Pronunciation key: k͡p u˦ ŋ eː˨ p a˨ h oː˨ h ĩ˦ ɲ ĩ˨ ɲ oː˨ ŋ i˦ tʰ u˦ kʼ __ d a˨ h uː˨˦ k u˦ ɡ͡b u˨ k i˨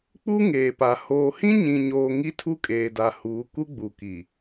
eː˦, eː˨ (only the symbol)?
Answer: eː˨